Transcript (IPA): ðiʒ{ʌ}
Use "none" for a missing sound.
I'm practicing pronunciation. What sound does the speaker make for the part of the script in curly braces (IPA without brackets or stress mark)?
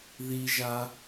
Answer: a